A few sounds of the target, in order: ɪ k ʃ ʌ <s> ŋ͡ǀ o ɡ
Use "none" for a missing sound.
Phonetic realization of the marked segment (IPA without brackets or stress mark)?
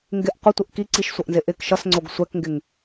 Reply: s